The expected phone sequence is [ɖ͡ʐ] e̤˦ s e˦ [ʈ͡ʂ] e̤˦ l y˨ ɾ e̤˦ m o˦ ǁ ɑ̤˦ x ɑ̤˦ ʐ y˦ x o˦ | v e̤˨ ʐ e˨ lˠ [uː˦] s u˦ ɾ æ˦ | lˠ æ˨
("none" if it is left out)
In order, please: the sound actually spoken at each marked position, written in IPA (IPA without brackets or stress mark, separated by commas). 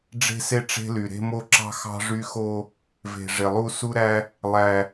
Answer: ɖ͡ʐ, ʈ͡ʂ, u˦